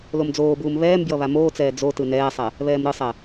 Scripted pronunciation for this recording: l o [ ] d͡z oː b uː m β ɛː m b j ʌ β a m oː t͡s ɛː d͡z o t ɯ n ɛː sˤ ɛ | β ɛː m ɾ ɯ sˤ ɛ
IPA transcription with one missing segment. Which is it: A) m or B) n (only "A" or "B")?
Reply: A